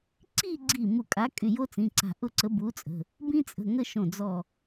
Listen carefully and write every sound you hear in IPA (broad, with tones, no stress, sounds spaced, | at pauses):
ǀ i˥˧ ɡ͡ǀ i˧˩ m u˧˩ kʼ a˨˥ kʼ y˩˧˩ j o˥ t͡s ĩ˩˧˩ ǀ a̤˧˩ ʔ ʊ˥˧ ǀ ə˨˥ b u˨˥ t͡sʼ ə̤˩˧˩ | b ĩ˥ t͡sʼ ə̤˩˧˩ ŋ ə˥˧ ʃ õ˧˩ d͡z ɔ˧˩